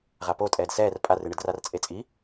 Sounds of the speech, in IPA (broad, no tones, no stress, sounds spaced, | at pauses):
ʁ a p o tʼ ɛː d s ɛː r pʼ a r ɨ ɳ ɨ d r a r t͡sʼ e t͡sʼ i